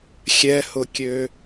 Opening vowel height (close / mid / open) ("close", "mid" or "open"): mid